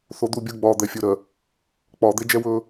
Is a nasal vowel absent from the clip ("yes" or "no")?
yes